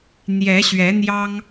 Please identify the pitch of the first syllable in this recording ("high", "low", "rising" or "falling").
rising